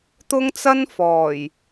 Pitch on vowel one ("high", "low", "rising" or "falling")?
high